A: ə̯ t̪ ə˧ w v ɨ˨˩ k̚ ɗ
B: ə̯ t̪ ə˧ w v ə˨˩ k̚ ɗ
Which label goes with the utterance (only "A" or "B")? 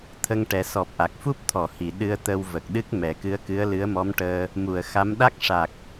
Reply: B